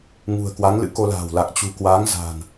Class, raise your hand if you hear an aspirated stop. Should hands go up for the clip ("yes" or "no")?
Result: no